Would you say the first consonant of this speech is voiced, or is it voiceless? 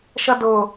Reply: voiceless